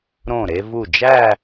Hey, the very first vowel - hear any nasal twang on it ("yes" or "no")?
yes